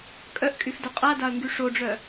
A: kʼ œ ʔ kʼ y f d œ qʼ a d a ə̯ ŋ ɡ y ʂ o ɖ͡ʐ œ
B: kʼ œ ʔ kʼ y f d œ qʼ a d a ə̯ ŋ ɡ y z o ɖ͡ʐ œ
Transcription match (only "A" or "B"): A